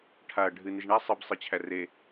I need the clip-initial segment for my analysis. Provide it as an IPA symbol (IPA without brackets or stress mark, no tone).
ʈʰ